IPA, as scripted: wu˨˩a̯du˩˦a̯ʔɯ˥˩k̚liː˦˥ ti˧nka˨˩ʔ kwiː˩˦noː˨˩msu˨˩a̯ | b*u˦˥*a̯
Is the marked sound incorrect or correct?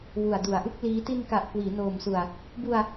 incorrect